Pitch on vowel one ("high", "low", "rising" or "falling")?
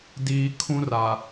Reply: low